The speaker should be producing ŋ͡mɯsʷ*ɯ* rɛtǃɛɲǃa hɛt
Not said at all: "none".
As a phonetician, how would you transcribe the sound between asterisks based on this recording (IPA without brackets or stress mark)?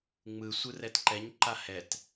ɯ